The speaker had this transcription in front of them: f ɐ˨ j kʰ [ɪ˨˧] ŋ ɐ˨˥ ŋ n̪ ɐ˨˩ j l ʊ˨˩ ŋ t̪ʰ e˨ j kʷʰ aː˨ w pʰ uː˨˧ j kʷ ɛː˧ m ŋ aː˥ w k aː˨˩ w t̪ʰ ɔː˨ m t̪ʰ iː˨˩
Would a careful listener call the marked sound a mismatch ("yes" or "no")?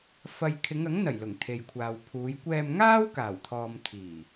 no